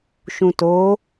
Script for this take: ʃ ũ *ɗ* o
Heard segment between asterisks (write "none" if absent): t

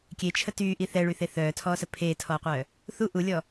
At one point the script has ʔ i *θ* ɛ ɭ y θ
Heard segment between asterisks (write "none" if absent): θ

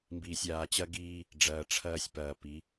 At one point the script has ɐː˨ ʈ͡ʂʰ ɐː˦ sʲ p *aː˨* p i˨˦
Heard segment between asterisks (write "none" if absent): ɐː˨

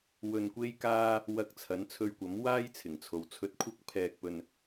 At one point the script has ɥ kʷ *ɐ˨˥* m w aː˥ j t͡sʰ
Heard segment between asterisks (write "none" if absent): ɐ˨˥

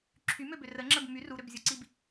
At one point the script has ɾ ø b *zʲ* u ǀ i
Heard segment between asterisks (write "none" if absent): zʲ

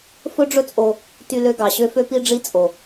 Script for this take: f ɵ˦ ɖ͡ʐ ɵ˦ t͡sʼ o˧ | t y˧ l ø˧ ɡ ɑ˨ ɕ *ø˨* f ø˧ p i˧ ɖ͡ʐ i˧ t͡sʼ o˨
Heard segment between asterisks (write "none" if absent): ø˧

